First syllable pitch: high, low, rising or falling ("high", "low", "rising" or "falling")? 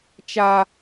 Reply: high